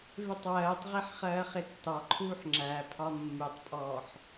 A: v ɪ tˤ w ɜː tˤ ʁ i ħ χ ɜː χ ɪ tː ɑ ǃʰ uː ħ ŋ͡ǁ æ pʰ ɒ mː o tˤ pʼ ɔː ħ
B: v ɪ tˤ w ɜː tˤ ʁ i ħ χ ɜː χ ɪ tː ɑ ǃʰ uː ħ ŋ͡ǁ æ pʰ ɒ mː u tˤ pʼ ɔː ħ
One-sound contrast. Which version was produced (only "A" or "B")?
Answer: B